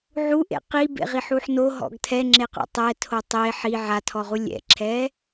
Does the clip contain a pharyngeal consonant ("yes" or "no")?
yes